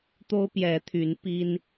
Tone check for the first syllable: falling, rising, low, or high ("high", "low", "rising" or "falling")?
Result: high